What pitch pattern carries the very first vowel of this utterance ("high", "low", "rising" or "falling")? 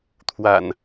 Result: low